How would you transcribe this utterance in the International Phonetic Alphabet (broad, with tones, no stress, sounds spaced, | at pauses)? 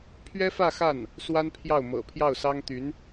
pʰ ɥ ɛ˥ f ä˥˧ x a˥˩ n | s w a˥ n pʰ j ɑ˥˩ ʊ̯ m ɤ̰˨˩ pʰ j ɑ˥˩ ʊ̯ s ɑ˥ ŋ t̪ y˧˥ n